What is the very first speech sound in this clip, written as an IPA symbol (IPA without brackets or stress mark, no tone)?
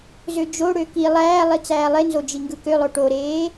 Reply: z